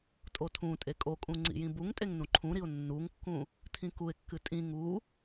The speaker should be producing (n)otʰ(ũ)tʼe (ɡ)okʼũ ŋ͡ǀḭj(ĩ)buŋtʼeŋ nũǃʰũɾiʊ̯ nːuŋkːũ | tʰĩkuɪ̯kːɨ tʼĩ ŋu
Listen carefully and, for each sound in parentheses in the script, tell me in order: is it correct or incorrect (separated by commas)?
incorrect, correct, incorrect, correct